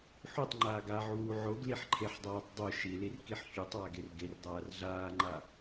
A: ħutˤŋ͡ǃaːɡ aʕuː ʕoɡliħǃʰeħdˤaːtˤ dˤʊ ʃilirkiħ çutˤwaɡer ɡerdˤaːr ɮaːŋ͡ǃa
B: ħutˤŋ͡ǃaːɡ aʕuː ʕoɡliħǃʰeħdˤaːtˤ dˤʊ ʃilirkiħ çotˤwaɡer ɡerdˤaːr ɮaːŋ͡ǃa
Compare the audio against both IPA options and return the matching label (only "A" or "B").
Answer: A